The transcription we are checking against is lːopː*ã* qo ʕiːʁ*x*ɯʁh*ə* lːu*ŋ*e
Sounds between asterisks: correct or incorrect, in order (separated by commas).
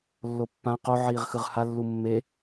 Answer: correct, correct, incorrect, incorrect